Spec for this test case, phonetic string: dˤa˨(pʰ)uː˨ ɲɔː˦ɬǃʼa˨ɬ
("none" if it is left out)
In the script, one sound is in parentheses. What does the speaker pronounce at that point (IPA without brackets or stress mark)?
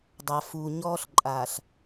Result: f